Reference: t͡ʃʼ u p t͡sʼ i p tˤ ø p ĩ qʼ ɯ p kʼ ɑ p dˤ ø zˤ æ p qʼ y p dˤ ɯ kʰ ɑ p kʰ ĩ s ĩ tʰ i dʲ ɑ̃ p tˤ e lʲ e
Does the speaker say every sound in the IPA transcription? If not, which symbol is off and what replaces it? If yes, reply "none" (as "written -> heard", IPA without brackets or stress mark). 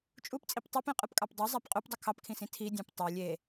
none